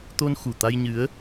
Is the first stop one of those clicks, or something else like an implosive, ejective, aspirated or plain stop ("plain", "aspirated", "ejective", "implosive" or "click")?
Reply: plain